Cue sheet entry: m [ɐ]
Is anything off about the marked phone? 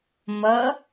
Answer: no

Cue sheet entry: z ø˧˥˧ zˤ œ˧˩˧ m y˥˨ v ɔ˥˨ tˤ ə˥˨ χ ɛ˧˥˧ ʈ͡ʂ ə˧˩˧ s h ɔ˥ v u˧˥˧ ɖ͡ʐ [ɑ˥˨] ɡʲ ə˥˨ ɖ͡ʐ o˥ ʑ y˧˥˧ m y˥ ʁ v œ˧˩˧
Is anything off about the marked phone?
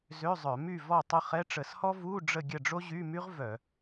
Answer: yes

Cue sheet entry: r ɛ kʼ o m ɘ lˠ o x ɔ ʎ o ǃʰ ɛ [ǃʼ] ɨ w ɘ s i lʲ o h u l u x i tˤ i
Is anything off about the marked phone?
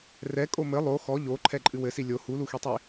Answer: no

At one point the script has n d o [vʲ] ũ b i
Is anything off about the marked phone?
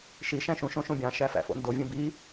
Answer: no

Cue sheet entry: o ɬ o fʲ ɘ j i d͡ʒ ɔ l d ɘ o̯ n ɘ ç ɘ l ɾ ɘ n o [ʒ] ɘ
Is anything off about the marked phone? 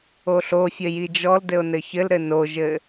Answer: no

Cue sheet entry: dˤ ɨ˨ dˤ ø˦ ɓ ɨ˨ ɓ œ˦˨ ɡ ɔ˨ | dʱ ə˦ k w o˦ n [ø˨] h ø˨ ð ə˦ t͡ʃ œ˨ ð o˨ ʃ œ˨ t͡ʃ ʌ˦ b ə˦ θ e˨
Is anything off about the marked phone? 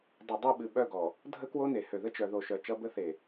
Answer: yes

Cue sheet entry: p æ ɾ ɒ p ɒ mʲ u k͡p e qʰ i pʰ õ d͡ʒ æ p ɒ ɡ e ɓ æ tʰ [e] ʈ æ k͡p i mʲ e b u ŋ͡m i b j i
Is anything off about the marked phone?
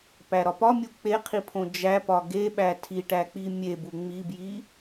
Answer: yes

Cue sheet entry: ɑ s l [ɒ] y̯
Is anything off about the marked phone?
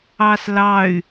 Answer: yes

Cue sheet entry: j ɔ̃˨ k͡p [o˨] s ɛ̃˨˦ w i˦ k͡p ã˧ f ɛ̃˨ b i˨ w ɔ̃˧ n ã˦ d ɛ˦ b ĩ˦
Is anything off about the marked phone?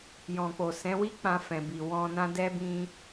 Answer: no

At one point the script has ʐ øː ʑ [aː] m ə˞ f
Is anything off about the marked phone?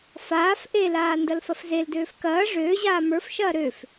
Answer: no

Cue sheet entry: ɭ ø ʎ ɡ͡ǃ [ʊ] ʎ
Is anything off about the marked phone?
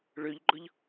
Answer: no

